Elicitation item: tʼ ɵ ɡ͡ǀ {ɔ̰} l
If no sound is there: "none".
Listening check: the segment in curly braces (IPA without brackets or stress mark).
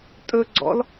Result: ɔ̰